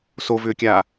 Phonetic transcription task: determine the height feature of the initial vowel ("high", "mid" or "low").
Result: mid